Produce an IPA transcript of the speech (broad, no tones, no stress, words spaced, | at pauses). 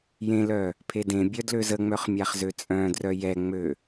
jẽlœ | pʰedẽbʲœ dløzəŋ͡mœχ mʲaχzøt͡sʼœ̃drœ jɛŋ͡mø